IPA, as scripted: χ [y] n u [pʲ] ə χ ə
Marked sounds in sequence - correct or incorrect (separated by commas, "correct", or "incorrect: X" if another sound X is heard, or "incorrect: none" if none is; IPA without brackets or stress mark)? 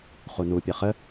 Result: incorrect: u, correct